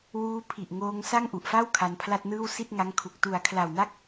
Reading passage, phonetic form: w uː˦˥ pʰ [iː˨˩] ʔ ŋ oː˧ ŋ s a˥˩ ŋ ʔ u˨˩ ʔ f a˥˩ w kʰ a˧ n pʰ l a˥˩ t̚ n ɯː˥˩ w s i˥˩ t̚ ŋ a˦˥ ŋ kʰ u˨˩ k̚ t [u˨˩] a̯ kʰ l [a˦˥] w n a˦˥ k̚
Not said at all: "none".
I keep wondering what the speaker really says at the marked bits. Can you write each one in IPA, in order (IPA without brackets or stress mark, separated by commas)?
i˨˩, u˨˩, a˨˩